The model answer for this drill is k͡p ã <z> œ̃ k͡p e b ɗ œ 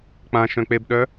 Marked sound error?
yes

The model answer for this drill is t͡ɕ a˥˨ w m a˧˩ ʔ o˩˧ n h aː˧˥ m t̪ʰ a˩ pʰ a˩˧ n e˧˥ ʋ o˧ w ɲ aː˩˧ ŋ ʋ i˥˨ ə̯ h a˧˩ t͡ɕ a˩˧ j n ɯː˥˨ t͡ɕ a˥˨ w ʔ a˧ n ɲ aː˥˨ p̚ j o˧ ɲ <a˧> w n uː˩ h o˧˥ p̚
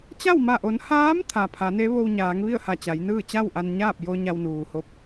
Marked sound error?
no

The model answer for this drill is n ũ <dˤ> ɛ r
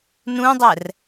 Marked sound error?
no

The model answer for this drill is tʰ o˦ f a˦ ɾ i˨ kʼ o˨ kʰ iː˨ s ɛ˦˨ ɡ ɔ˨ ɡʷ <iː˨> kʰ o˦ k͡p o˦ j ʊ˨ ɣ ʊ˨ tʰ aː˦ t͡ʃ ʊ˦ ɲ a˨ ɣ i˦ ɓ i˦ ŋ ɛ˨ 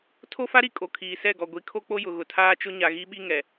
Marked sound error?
yes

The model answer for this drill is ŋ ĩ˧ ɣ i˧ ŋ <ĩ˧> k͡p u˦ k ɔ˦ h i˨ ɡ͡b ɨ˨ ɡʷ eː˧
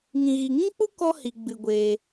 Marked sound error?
yes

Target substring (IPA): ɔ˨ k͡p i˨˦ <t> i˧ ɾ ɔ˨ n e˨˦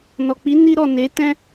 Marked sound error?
yes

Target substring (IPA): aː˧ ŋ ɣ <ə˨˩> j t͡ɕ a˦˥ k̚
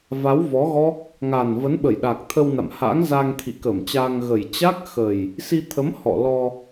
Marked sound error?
no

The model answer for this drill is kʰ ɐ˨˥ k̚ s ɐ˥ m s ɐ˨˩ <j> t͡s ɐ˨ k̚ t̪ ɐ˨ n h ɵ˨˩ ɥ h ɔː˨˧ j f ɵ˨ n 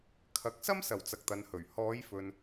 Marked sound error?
yes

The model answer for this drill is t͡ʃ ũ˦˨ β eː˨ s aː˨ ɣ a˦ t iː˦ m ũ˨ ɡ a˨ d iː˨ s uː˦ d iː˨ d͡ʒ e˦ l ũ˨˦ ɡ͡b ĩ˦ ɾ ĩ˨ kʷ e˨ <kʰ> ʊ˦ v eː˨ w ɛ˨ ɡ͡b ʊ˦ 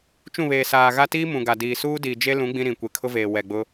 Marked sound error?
no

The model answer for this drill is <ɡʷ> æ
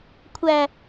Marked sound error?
yes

